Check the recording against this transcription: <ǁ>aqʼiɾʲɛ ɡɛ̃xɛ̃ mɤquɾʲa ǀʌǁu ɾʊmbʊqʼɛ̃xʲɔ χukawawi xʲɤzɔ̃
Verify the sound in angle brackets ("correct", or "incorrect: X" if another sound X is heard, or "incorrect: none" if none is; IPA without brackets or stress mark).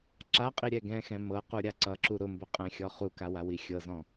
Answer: correct